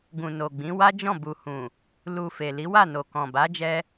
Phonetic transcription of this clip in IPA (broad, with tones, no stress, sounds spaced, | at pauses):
ɡ ũ˨ n o˨ ɡ͡b ĩ˨˦ w a˦ d͡ʒ ɔ̃˦˨ b u˨ h ũ˨ | l u˨ f e˨ l i˨˦ w a˦˨ n o˨ k ɔ̃˨ b a˨˦ d͡ʒ ɛ˧